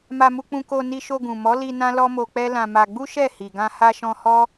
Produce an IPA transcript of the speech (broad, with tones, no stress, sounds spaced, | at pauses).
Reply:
m a˧ m u˧ k͡p ũ˧ k o˧ n i˧ ʃ o˧ ɡ ũ˨ m ɔ˨˦ l i˧ n ã˦ l ɔ˦ m o˧ k͡p ɛ˦ l ã˧ m a˧ ɡ͡b u˦ ʃ ɛ˦˨ h i˨ ɡ ã˧ h a˧ ʃ ɔ̃˧ h ɔ˦